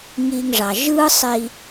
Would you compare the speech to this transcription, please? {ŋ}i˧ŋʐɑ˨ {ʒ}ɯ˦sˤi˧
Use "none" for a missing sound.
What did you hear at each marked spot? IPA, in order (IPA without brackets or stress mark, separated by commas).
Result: ŋ, ʒ